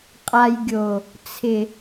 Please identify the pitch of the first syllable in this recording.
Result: low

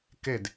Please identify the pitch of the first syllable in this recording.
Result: falling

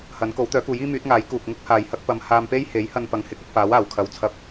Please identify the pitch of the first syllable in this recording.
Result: rising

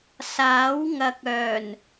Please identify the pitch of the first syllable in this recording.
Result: rising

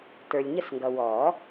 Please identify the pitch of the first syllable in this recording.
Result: low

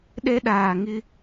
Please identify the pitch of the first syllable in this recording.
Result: high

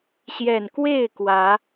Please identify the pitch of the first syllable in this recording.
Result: low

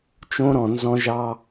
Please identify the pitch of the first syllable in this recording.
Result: high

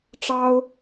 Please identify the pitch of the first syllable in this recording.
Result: high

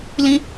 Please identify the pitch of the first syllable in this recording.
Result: high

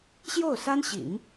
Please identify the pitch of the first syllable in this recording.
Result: falling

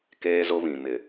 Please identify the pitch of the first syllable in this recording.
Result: high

